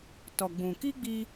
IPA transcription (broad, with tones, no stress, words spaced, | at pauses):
tɔ˨ɡ͡bũ˨ ki˦ɡ͡bi˧